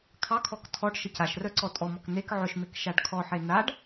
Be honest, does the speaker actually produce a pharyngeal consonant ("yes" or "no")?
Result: yes